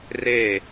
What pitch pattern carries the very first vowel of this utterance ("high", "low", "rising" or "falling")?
falling